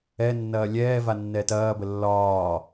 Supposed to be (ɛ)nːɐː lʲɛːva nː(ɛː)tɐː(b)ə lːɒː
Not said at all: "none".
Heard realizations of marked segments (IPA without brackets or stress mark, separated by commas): ɛ, ɛː, b